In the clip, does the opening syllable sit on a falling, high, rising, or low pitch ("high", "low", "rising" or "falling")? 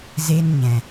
high